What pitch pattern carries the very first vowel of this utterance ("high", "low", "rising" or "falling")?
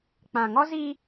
low